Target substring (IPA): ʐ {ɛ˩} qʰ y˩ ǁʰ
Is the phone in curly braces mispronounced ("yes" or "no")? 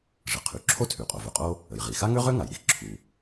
yes